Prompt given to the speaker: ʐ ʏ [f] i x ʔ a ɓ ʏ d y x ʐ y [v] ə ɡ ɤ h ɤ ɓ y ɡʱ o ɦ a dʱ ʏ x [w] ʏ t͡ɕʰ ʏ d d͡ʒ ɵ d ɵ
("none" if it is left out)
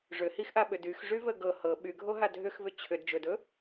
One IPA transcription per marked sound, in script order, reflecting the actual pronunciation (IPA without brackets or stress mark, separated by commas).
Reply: h, v, v